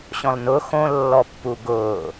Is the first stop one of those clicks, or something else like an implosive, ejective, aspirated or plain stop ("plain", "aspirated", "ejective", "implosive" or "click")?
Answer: plain